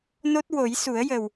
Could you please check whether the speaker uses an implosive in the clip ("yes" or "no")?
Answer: no